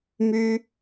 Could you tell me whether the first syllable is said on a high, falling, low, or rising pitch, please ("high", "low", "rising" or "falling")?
high